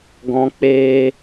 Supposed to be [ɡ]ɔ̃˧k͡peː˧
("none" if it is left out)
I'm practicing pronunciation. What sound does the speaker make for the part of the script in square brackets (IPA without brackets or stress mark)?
ɡ